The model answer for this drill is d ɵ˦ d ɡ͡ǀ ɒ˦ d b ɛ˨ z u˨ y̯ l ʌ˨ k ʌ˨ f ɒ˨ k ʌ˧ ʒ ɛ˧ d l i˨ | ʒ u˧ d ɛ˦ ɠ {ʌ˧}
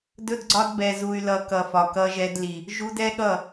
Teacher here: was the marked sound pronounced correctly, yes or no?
no